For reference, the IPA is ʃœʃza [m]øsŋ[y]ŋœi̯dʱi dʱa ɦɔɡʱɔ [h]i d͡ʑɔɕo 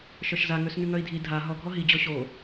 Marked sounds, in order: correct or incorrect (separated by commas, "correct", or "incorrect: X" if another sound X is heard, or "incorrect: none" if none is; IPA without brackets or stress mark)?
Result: incorrect: ŋ, correct, incorrect: ɦ